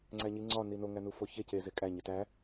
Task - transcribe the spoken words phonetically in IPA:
ŋ͡ǀ æ ɲ i ŋ͡ǀ ɒ n i n o ŋ æ n u f o ç e c e z e kʼ æ ɲ e t æ

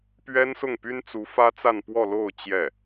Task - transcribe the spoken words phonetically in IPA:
p ɥ ɛ˥ n s ʊ˥˩ ŋ p y˥ n t͡s u˧˥ f ä˥ t͡s a˥˧ n p w ɔ˥˧ l o˥˧ ʊ̯ t͡ɕ j ɛ˥˩

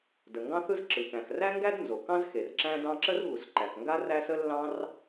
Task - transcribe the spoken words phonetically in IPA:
d ə˩ ŋ ɡ ɑ̃˥ θ ɯ˥ z ǁ ɯ˩ k æ̃˩ x r æ˥ ŋ ɡ æ˥ d n z o˩ k ɑ̃˥ z x e˩ r ǁ æ̃˥ d ɑ̃˥ ǁ ə˥ r ɣ u˩ s ǃ æ˩ k ŋ ɡ a˥ r æ˥ s ə˥ lː ɑ̃˥ r

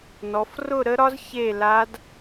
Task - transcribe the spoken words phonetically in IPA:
n ɔ˨˦ f r ʊ˥˧ ɾ ə˦˥ ɾ ɒ˦˥ z ç e˥˧ l a˦˥ d

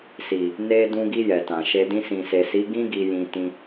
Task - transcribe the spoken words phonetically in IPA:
s i˨ | n e˧ d ũ˧ ɡ i˧ j ɛ˨ t ã˨ ʃ e˧ d ĩ˧ s ĩ˨ s e˨ s i˨˦ ɡ ĩ˦ ɡ i˧ j ĩ˧ t ĩ˧

